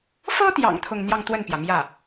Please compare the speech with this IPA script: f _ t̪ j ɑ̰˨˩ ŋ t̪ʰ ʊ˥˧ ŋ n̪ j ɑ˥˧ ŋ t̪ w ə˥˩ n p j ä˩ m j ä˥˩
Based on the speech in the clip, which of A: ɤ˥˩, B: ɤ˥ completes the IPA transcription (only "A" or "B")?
B